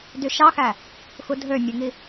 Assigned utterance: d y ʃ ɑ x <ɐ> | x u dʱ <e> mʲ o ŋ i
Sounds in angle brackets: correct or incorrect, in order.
incorrect, incorrect

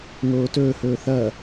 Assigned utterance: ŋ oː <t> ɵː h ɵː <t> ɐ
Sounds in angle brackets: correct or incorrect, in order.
correct, incorrect

